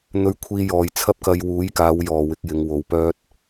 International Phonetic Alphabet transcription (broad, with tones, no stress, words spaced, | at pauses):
n̪ɵ˧ɥkʷʰiː˧ jɔː˨jt͡sʰɐ˥p̚kɐ˧j wuː˨˥jkaː˨˧w jɔː˨wɪ˨˥k̚ jɪ˨˧ŋwo˨˧wpœː˥t̚